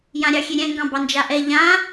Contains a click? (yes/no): no